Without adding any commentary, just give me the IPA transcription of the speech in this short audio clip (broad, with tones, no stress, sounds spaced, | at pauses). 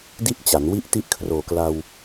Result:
d i˥˩ ʔ t͡ɕ a˩˦ n w i˥˩ ʔ t i˥˩ ʔ kʰ r oː˨˩ k l a˧ w